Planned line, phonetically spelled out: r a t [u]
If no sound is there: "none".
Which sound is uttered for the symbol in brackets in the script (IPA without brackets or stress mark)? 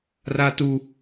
u